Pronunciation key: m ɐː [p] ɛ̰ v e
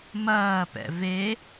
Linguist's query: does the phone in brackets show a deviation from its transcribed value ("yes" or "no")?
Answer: no